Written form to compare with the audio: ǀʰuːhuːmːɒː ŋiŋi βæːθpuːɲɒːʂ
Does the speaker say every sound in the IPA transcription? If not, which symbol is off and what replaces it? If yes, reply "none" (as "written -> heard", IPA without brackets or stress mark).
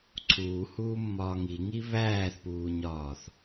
ʂ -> θ